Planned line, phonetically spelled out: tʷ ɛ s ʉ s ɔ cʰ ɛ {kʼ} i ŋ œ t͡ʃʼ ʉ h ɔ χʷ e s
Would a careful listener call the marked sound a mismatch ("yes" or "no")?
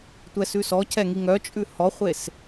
yes